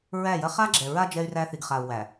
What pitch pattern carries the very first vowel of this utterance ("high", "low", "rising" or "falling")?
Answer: falling